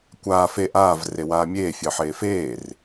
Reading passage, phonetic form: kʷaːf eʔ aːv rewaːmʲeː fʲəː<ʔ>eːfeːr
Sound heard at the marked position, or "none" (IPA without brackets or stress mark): ħ